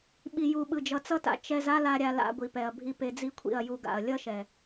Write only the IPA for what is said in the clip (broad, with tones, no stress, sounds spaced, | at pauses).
ɓ i˨ j u˨ ɓ ɯ˨ d͡ʒ ʌ˨ t͡s ʌ˧ t a̰˨ t͡ʃ ɛ˧ z a˦ l a˧ ɾʲ a˧ l a̰˧ ɡʷ i˨ p ɛ˨ ɐ̯ bʱ i˧ p e˧ d͡z i˦ kʷʰ ḭ˦˨ ɐ̯ j u˧ ɡ a̰˨ ɐ̯ lʲ ʌ˦ ʃ ɛ˨